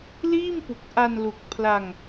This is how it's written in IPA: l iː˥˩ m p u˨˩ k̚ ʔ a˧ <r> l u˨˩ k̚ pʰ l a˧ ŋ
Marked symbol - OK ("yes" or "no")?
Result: no